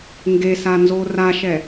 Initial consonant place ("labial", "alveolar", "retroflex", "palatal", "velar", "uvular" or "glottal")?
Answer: velar